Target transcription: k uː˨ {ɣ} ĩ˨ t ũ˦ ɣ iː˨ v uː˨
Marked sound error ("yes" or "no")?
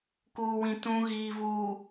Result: yes